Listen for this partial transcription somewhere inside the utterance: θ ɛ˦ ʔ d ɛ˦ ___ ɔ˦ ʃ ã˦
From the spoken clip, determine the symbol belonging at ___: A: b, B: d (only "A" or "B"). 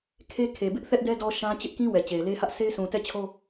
B